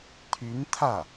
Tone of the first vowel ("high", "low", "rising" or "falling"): rising